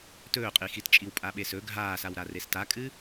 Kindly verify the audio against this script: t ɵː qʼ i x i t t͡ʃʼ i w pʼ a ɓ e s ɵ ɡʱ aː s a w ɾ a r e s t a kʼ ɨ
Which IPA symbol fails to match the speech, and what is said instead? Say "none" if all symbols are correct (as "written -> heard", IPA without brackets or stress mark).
none